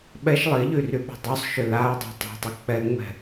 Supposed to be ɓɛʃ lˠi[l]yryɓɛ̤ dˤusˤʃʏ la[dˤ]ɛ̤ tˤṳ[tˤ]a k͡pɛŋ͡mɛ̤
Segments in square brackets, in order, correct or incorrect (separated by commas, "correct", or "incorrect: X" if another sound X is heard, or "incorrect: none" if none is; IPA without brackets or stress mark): incorrect: ʎ, correct, correct